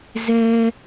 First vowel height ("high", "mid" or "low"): mid